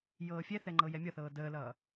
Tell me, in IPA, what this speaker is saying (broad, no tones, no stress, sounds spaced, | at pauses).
j ɤː fʲ ɛ θ ɛ ŋ͡ǃ ɤ j ɛ mʲ ʌ θ ɤː d əː l ʌː